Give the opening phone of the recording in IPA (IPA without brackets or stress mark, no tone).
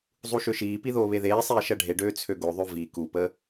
zˤ